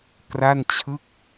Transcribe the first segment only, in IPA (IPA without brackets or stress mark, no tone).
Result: k